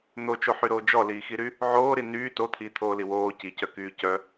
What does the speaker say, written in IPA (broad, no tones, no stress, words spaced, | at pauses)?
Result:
n̪ot͡ʃoħyɾoː d͡ʒɔliːxiɾy | ʕoːɾi nyː tot̪ʰiːt̪ʰoːli woː cicœkyː cœ